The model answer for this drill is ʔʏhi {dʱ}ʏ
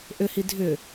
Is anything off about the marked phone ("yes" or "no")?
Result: no